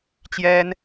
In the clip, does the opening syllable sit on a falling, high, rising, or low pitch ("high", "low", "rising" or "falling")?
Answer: high